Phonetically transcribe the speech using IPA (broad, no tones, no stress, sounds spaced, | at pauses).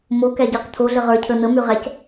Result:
m o k æ ɟ ɛ q t̪ʰ o ɮ ə ʁ ə˞ cʰ ə n̪ ə m y ʁ æ c